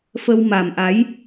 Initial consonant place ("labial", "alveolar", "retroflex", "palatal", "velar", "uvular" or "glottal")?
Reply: labial